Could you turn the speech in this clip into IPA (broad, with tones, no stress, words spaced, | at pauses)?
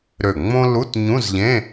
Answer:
ɾø˧˩ŋ͡mõ˥ lu˧˥˧tɲũ˧˥˧zʎẽ˧˥˧